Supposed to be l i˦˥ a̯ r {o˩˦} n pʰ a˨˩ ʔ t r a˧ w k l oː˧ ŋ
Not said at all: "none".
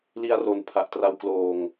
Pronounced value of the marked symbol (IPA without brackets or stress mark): o˧